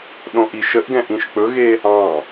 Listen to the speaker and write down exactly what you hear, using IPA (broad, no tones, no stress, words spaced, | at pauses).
ɗõʔiʃəʔɡɛ̃ ʔĩʃk͡pɵɣe | ɑ̃